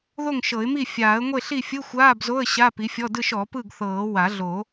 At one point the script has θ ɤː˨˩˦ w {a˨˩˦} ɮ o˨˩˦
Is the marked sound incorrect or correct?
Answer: correct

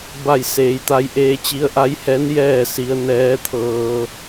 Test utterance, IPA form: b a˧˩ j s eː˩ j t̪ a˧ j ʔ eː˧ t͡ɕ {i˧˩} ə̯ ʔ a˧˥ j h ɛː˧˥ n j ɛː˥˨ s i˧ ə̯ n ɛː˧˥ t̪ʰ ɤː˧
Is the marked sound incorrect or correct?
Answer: incorrect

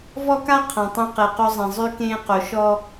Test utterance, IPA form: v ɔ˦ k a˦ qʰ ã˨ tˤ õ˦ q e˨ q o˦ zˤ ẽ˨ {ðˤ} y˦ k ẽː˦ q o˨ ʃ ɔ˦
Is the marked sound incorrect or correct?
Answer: incorrect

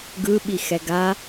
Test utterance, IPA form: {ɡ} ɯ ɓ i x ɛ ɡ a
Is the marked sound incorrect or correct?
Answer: correct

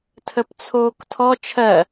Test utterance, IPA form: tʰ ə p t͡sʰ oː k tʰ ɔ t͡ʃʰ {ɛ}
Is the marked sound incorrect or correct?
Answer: incorrect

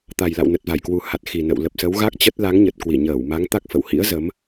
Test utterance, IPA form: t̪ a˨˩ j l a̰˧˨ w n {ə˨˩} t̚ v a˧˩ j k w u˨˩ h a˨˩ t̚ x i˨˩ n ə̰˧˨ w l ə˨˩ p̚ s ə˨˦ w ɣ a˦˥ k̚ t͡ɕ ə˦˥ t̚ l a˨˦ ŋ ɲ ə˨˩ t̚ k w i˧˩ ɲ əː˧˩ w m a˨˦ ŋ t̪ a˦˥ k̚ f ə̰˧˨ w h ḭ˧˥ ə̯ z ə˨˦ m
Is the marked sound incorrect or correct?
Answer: correct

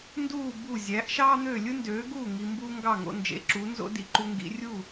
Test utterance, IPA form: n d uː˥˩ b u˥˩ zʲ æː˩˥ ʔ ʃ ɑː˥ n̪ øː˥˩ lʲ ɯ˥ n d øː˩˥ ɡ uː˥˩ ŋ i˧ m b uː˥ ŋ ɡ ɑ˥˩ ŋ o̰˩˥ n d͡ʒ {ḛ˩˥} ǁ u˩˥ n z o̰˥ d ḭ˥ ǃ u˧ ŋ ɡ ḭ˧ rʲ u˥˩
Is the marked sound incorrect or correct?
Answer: correct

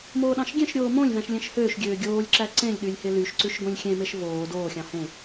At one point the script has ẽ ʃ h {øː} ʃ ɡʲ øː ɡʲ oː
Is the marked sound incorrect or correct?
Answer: correct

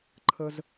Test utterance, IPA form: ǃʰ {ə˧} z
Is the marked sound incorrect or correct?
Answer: correct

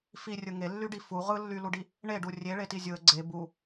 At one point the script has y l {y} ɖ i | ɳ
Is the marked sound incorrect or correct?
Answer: incorrect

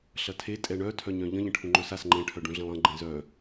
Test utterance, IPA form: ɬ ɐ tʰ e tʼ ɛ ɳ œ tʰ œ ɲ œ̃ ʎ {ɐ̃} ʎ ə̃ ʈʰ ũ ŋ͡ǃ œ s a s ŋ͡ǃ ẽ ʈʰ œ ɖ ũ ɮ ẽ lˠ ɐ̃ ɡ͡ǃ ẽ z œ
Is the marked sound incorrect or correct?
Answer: incorrect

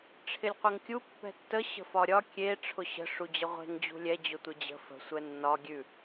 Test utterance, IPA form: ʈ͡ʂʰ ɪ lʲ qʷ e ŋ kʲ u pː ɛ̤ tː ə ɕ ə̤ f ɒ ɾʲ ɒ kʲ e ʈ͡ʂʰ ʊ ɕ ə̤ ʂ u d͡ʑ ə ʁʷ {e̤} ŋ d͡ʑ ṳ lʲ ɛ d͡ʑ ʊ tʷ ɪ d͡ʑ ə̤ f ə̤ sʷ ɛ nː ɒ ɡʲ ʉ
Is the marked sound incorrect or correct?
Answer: correct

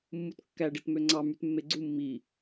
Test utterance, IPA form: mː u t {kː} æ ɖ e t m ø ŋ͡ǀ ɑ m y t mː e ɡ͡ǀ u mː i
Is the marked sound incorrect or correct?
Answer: correct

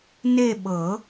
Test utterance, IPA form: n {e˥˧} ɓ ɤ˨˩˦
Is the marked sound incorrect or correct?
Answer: correct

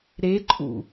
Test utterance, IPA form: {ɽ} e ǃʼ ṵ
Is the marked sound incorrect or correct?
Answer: incorrect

